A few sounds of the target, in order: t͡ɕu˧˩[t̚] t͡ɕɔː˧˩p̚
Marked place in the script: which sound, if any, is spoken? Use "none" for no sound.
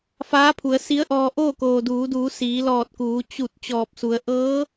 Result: t̚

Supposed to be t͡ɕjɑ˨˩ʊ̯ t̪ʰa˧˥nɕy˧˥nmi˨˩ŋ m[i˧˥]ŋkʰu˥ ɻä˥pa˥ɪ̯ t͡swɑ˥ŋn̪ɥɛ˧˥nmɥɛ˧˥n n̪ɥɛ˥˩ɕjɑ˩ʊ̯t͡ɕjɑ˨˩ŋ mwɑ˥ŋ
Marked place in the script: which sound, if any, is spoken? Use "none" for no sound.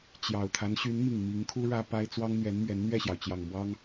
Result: i˧˥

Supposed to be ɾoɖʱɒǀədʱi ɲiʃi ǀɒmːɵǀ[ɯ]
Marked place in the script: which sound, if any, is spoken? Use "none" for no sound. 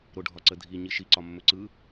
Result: ɯ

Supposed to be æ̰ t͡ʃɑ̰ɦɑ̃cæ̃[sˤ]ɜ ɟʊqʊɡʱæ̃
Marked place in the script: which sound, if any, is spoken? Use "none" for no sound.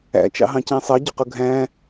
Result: sˤ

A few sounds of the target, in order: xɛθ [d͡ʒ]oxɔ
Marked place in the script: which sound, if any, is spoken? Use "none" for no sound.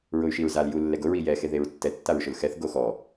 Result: ɡ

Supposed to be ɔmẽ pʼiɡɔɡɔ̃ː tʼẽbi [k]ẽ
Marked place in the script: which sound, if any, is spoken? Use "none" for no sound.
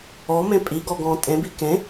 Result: k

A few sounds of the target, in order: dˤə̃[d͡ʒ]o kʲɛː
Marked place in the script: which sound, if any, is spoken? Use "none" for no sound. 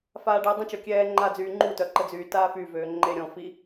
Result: t͡ʃ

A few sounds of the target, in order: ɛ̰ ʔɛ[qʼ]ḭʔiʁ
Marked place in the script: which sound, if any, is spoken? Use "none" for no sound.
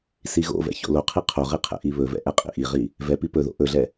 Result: qʼ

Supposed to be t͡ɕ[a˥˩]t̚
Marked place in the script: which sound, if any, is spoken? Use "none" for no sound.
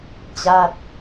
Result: a˥˩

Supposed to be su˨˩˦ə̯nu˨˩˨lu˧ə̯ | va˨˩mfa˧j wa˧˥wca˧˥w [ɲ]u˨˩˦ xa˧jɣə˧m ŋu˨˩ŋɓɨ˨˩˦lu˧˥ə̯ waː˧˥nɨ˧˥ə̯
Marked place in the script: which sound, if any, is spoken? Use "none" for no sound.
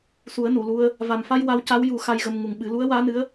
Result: j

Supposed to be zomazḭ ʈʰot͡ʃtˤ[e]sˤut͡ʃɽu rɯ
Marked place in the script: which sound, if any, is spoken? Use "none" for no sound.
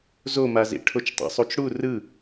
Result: ḛ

